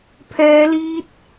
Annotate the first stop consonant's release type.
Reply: aspirated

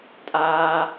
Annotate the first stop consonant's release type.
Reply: ejective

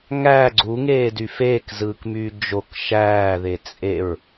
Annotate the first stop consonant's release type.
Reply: click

